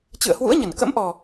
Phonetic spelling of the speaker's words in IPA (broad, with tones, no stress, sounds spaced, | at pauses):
t͡ɕ ɨ̰˧˨ ə̯ h w ṵ˧˥ ə̯ ɲ ə˧˩ n k ə̰˧˥ m ʔ ɔ˨˩